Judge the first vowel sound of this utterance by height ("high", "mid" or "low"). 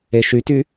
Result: mid